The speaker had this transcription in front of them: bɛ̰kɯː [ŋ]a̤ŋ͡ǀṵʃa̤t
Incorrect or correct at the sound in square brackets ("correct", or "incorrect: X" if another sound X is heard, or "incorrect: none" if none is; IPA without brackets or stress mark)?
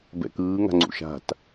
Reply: correct